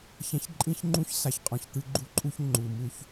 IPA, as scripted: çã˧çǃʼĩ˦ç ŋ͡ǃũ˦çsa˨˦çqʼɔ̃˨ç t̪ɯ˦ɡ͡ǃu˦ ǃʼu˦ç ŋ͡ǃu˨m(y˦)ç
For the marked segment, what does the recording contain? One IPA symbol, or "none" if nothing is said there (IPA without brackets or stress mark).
u˦